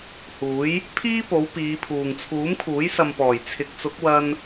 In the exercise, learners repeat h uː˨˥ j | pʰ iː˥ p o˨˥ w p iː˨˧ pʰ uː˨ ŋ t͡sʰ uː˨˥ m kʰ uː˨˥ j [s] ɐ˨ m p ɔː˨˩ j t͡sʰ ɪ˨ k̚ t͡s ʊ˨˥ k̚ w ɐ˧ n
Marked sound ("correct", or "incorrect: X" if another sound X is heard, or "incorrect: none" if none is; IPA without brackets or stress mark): correct